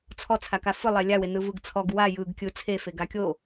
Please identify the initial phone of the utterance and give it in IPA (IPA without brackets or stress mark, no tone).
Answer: t͡sʰ